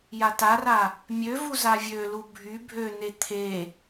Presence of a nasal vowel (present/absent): absent